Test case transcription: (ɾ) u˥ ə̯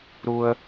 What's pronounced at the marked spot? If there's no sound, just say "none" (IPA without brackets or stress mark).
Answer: ɾ